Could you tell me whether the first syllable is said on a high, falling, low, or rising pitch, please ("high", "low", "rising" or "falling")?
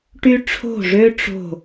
high